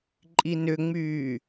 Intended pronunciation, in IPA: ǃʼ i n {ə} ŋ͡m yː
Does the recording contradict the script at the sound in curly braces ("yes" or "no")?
yes